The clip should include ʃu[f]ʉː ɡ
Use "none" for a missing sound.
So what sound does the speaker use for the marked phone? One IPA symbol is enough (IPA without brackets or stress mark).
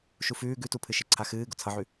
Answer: f